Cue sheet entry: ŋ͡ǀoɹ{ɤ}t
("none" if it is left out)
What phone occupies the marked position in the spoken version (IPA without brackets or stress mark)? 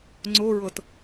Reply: ɤ